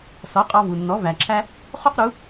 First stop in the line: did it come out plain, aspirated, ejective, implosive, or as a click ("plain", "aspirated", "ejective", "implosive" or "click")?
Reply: ejective